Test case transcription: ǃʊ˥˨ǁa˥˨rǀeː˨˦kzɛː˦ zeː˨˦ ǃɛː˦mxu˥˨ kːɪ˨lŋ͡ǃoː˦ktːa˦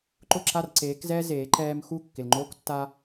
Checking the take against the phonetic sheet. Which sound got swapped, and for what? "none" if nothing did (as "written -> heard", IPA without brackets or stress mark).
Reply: none